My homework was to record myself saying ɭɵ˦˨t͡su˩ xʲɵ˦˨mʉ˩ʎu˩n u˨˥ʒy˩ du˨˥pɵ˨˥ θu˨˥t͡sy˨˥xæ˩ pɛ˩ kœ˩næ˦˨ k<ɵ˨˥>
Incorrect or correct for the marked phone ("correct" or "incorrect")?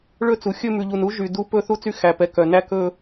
incorrect